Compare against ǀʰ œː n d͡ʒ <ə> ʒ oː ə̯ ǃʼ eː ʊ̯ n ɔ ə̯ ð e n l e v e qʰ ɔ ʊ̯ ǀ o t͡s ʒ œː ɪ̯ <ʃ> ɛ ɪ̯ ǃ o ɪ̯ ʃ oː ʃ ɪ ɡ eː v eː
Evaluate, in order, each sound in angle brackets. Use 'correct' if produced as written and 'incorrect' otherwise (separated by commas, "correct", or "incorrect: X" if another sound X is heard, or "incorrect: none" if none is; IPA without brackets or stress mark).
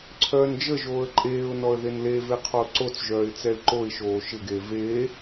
correct, incorrect: t͡s